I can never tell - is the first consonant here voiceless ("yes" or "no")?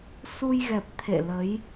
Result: yes